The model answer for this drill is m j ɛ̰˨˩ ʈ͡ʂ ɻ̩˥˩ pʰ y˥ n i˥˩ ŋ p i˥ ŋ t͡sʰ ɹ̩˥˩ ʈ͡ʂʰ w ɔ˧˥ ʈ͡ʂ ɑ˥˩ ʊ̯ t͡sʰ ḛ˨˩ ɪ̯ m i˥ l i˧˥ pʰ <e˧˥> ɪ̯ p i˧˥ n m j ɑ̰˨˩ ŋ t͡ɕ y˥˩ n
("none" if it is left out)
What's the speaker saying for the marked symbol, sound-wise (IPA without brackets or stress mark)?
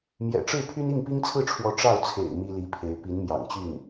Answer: e˧˥